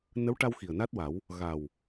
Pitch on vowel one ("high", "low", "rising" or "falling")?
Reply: rising